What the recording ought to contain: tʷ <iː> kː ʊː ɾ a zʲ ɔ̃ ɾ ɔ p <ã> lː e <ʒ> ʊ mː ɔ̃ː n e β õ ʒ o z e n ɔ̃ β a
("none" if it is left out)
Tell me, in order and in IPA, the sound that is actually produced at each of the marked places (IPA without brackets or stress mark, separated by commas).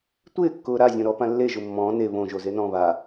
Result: ɪː, ã, ʒ